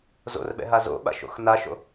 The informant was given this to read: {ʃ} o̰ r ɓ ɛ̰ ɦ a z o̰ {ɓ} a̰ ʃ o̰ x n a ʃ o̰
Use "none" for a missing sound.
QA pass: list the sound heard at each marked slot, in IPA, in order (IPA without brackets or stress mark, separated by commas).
z, ɓ